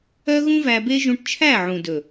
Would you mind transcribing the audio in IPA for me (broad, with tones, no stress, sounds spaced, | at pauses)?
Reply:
œ˦ ɣ ũ˦ v æ˧ b e˦ ʒ ũ˧ ʈ t͡ʃʰ æ˦˨ ʕ ũ˨ d ɵ˨